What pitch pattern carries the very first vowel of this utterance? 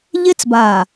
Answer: high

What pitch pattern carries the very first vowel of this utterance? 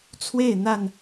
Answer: falling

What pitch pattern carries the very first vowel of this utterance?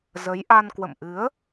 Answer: rising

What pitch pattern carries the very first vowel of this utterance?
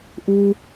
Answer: high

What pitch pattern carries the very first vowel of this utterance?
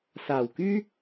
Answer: low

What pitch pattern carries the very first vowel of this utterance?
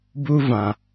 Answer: high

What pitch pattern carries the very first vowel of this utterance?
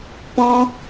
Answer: high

